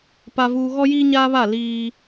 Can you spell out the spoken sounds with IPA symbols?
p a˦ v uː˦ ɣ ɔ˦ j iː˦ ɲ aː˦ β a˦˨ l iː˦

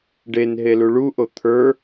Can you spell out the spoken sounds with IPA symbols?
ɖ e n ɦ e l u ɭ u ʔ o t̪ʰ ə˞

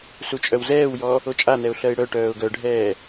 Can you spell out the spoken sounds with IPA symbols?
s u t͡ʃʼ œ w z ɛː w j ɔ | o t͡ʃʼ a n̪ ɛ ʊ̯ ɬ ɜ ɪ̯ ɽ œ ʈ œː ʊ̯ ɡ œ ɖʱ ɛː

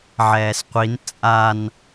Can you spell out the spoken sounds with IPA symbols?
ʕ ɛː s qʷ i n t͡sʼ a n

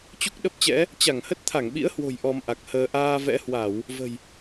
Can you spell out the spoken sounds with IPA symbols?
t͡ɕ u˦˥ k̚ ɗ ə˦˥ p̚ t͡ɕ ɛ̰˧˥ | t͡ɕ a˧˩ ŋ h ə˦˥ t̚ t̪ʰ a˧˩ ŋ ɓ ḭ˧˥ ə̯ h w o̤˨˩ j ʔ ɔ˧ m ʔ a˨˩ k̚ h əː˧ ʔ aː˧ v ɛ̰˧˥ h w a˧˩˨ w | v ə̤˨˩ j

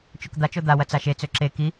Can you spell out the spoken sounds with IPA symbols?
t͡ʃ o k d̪ a t͡ʃ o d̪ a w ɐ t͡s a ʃ e t͡s ø ǁ e k i

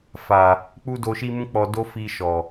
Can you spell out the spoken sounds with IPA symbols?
f a˨ | k͡p u˦ d o˧ ʃ i˦ m ũ˦ k͡p ɔ˧ d o˦ f i˧ ʃ ɔ˨

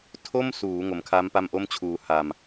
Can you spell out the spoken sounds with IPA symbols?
tʰ o˥˩ m s uː˩˦ ŋ o˩˦ m kʰ a˦˥ m p a˥˩ m ʔ o˥˩ m t͡ɕʰ uː˧ h a˧ m

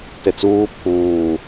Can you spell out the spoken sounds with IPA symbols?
t ɘ t͡s uː pʰ uː

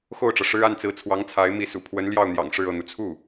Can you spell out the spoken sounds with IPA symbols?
x o˥˩ ʊ̯ ʈ͡ʂ ɤ˩ ʂ ɻ̩˥ a˥˩ n t͡s ɹ̩˧˥ t͡sʰ w ɑ˧˥ ŋ t͡sʰ a˧˥ ɪ̯ m i˧˥ s ṵ˨˩ pʰ w ə˧˥ n l j ɑ˥˩ ʊ̯ n̪ j ɑ̰˨˩ ŋ ʂ ɻ̩˥˧ ɤ˥˩ n̪ u˩ t͡sʰ u˥˩

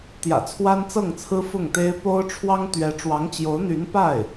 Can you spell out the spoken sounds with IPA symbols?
t̪ j ä̰˨˩ t͡sʰ w a˥ n t͡s ɤ˥˩ ŋ t͡sʰ ɹ̩˥ f ʊ˥˩ ŋ t̪ e˥ ɪ̯ p o˥ ʊ̯ ʈ͡ʂʰ w ɑ˥ ŋ t̪ ɥ ɛ˧˥ ʈ͡ʂ w ɑ˧˥ ŋ t͡ɕ j o˧˥ ʊ̯ n̪ y˧˥ n p a˥˩ ɪ̯

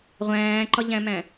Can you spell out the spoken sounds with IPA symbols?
ʁʷ æ̃ː ǃ ɒ ʎ æ̃ m æ̃

